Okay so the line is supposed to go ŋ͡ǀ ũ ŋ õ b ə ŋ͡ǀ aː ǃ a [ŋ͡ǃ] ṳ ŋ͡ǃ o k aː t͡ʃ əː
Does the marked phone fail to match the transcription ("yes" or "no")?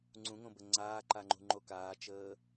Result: no